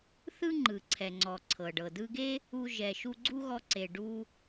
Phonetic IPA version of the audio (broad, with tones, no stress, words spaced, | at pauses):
θɯ˥ŋ͡ǃɯ˩ǀʰɛ˩ŋ͡ǀɔ˩ ǀʰɤ˩ɖɤ˩dɯ˧ɡe˥ | u˧ ʒɛ˩ʃu˧ ɡ͡ǀu˥ɣɔ˧ǀe˩ ɖu˧